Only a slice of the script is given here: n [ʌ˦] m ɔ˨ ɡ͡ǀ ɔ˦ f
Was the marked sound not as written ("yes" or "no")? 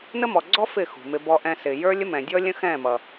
yes